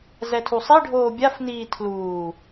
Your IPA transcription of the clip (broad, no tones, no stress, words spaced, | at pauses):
zɛtʰusˤi ɖʱoːbʲafniː tʰluː